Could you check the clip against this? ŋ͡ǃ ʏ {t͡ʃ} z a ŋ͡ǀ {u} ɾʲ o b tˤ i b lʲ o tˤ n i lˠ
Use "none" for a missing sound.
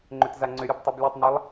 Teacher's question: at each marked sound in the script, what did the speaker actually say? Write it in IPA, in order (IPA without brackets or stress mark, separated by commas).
t, ʏ